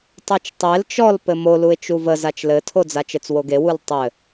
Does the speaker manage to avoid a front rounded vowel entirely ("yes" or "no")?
yes